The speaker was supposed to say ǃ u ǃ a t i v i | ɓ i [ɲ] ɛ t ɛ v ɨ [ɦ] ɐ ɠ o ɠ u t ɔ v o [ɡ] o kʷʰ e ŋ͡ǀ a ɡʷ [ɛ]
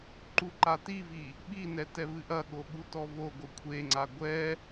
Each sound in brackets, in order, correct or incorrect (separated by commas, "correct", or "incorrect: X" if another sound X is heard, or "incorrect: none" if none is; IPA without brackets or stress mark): incorrect: n, incorrect: ʔ, correct, correct